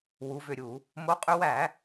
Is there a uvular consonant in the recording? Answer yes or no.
yes